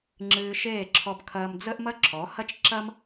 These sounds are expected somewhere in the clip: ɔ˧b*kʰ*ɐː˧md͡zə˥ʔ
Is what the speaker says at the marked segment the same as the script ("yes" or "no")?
yes